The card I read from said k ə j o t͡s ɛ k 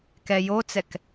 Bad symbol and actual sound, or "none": ə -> ɛ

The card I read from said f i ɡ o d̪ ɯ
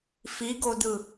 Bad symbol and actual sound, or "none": none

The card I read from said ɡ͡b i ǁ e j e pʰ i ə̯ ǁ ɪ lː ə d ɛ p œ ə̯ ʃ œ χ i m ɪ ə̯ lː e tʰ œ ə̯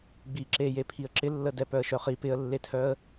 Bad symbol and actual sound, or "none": m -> p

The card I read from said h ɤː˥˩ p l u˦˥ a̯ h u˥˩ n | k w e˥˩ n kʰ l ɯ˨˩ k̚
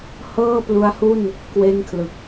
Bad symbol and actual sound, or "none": none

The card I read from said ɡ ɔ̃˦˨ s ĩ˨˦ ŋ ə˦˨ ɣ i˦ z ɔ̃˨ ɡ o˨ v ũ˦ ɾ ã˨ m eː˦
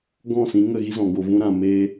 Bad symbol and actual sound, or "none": none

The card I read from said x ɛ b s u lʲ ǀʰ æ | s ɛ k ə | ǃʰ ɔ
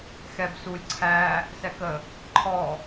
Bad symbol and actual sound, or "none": none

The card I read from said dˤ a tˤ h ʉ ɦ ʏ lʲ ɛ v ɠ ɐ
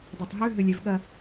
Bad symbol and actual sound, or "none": h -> ɦ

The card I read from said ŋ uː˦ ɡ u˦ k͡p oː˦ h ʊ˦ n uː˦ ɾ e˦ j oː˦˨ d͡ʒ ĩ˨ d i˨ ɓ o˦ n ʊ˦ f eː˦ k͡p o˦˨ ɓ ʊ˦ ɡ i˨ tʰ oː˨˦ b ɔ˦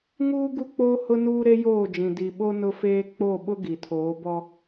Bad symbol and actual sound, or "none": none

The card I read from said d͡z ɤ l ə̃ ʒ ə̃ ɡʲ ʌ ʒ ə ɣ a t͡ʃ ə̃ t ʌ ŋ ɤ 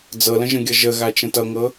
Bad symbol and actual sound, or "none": none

